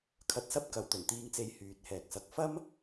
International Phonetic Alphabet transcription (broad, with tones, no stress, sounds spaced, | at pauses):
kʰ ɐ˧ t̚ s ɐ˥ p̚ k ɐ˨˧ w t̪ ɵ˨˩ n t̪ iː˧ ŋ t͡s e˧ j h yː˨˥ t̚ h ɛː˨ k̚ s ɐ˧ k̚ f ɐ˥ m